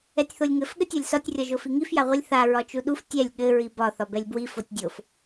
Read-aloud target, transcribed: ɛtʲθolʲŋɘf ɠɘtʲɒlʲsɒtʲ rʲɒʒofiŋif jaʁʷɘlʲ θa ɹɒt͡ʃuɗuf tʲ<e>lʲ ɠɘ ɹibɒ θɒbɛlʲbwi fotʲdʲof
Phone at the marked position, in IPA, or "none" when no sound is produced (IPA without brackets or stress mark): ɛ